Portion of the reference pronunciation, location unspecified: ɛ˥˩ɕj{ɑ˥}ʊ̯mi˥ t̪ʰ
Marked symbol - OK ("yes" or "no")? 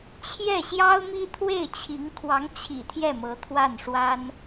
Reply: yes